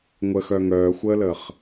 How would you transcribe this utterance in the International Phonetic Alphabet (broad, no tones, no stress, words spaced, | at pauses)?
ŋʷəxœ ŋœːxʷəːləːχ